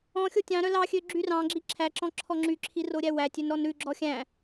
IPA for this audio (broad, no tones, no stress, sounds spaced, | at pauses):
ɔ̃ xʲ o tʲ ɑ̃ ɾ œ l ɑ xʲ ø ɡ͡ǁ y r ɑ̃ ɡ͡ǁ i ǁʰ æ ǁ ɔ̃ ǁʰ ɔ ŋ͡ǁ y ǁʰ i r o ɾʲ æ w æ tʲ ø n ɾ ɔ n ɾ ʉ ɡ͡ǁ ɔ xʲ æ̃